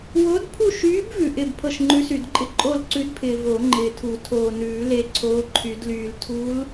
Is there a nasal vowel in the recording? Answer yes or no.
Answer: no